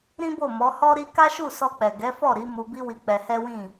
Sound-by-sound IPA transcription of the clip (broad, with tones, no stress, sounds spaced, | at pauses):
ɾ ĩ˦ b o˦˨ m ɔ˨˦ h ɔ˦ ɾ i˦ k a˦ ʃ u˦˨ s ɔ˧ k͡p ɛ˨ ɡ ɛ˨˦ f ɔ˦˨ ɾ i˨˦ m u˧ b i˦ w i˧ k͡p ɛ˧ h ɛ˦ w ĩ˦˨